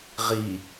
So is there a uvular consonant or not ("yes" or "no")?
yes